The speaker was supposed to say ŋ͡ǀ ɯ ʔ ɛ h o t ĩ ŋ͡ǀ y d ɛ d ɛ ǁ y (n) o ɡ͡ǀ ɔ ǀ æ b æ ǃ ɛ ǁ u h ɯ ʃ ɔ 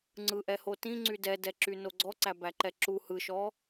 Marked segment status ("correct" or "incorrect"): correct